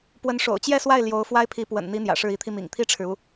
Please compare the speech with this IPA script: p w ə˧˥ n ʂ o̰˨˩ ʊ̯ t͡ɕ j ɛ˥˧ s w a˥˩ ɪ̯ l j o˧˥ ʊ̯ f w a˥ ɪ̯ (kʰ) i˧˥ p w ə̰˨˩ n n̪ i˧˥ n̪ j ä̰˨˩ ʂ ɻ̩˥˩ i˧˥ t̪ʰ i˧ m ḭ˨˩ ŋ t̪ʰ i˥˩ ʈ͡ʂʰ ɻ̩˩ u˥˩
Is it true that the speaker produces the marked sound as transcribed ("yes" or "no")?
no